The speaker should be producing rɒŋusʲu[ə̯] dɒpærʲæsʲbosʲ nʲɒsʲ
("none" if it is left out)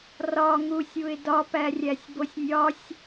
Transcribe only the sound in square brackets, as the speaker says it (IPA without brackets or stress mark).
ɪ̯